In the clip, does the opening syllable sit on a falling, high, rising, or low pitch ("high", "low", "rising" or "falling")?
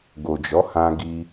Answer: low